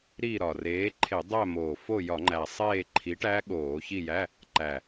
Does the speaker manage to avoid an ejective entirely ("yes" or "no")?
yes